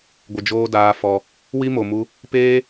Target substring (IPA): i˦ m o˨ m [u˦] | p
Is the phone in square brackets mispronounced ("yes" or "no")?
yes